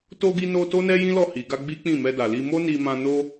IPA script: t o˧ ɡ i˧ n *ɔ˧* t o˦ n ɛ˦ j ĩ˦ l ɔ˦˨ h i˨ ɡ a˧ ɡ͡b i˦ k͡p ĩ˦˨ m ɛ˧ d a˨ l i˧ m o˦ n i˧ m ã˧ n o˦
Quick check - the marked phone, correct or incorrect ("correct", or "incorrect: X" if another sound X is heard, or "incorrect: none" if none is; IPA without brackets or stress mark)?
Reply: incorrect: o˧